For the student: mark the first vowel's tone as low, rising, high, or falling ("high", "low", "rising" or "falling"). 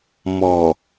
low